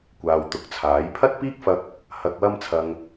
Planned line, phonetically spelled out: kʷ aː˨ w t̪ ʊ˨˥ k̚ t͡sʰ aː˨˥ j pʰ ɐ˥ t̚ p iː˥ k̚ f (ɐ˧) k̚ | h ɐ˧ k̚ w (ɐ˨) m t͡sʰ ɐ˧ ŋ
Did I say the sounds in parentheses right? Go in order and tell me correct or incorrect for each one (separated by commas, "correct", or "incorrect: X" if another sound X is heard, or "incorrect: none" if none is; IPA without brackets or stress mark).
correct, incorrect: ɐ˥